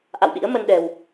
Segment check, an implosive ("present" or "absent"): present